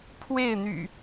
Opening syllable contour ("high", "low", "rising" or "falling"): falling